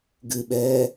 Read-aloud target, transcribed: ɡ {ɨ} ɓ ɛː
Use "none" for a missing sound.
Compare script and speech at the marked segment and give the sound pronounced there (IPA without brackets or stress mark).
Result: ɨ